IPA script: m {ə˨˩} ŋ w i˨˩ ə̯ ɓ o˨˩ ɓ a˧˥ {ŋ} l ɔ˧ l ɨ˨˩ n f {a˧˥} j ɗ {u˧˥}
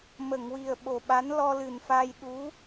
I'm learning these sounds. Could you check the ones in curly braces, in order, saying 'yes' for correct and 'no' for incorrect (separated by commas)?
no, no, no, yes